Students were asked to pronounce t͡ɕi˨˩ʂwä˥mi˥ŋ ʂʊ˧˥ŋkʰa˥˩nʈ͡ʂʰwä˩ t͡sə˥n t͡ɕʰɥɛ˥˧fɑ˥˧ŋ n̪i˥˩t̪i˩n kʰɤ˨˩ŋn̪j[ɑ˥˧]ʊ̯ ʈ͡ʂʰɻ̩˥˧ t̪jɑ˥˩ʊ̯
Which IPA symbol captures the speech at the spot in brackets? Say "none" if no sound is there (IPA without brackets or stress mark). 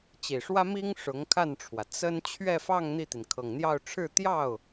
ɑ˥˧